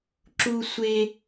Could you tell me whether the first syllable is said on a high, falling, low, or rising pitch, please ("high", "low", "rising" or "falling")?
high